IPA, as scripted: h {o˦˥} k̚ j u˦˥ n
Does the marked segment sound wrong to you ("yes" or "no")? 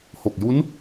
yes